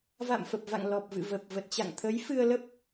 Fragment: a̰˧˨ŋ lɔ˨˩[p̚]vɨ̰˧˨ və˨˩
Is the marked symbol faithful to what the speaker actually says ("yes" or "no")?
yes